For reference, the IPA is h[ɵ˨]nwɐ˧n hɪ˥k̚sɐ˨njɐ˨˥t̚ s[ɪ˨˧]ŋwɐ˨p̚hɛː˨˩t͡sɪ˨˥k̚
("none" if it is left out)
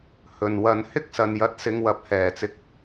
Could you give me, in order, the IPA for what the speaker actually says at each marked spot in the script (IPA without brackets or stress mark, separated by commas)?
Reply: ɵ˨, ɪ˨˧